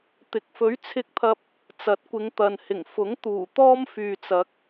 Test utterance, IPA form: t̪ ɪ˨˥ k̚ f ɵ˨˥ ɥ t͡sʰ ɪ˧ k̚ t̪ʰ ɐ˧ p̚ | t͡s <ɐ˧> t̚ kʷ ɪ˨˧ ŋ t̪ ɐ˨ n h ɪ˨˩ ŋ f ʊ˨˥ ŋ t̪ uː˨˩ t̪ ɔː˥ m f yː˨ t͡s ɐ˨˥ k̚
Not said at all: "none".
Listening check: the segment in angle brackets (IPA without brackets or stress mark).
ɐ˨˥